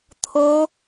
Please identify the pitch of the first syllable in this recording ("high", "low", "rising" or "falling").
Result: high